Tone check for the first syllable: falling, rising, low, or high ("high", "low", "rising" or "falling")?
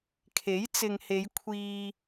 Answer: rising